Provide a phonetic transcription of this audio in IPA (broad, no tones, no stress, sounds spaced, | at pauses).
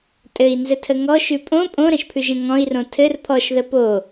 tʼ ɘ i̯ n z ɘ tʰ ə ŋ ɔ ʃ ʉ pʼ õ pʼ õ ɾ ə̃ ʃ pʰ ʉ ʒ ə̃ ŋ ɔ̃ i̯ r õ tʰ ɘ r pʰ ɔ ʃ ð ə p o